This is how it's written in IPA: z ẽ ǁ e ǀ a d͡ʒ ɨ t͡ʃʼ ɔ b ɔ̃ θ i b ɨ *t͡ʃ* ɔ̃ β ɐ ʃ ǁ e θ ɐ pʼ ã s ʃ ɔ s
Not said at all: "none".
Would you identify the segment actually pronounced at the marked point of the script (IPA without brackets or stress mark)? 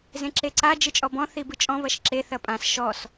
t͡ʃʼ